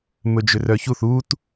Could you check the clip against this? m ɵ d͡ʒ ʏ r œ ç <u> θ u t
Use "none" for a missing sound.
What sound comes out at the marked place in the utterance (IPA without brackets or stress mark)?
u